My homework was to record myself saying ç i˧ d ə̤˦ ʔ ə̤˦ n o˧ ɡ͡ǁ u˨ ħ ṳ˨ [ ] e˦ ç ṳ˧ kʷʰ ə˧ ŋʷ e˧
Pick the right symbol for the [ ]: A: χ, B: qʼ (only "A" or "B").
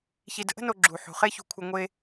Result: A